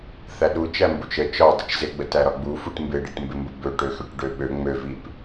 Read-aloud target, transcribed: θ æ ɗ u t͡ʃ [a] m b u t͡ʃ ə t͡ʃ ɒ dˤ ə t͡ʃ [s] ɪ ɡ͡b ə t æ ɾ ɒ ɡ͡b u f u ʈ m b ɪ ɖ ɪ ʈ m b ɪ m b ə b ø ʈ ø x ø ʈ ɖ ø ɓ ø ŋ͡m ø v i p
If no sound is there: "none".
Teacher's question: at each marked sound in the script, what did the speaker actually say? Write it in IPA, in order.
æ, z

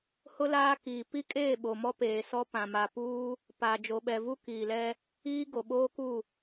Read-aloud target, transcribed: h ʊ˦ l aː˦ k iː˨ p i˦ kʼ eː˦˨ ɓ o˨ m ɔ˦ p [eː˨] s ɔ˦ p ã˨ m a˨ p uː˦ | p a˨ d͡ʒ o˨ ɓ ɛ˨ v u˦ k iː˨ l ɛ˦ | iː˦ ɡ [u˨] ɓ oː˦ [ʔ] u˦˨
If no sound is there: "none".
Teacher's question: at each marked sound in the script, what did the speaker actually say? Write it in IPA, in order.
eː˨, o˨, k

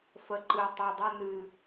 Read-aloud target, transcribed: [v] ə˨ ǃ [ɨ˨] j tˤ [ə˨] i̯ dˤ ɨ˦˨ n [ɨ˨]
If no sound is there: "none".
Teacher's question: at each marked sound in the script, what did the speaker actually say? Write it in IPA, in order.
f, ɨ˨, ə˨, ɨ˨

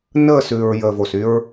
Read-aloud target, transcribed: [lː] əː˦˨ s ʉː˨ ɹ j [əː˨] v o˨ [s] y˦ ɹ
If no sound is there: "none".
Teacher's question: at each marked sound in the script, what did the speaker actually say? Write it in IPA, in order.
n, əː˨, s

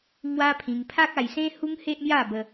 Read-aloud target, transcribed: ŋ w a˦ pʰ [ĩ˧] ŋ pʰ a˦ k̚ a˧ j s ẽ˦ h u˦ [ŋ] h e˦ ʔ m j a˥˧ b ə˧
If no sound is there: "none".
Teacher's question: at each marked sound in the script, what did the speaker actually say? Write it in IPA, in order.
ĩ˧, ŋ

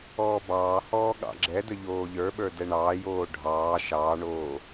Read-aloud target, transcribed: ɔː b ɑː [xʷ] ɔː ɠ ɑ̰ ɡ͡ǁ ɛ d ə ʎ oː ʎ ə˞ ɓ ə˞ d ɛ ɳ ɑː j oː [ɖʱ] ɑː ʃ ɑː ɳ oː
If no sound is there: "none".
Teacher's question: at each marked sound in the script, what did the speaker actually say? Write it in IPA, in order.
h, ɖʱ

